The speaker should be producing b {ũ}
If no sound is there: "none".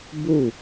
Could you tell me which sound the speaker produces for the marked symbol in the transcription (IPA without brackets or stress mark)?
u